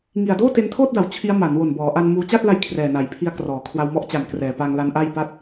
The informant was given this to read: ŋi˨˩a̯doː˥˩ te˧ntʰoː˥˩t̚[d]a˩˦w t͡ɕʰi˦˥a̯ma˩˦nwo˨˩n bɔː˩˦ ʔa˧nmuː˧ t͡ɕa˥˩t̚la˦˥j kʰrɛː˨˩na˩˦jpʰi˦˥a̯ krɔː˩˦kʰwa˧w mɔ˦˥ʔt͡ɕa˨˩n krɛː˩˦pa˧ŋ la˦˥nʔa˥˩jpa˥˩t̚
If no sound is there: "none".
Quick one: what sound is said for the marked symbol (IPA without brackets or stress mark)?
d